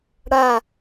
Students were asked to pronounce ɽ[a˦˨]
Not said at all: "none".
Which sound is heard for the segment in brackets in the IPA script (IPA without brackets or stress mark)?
a˦˨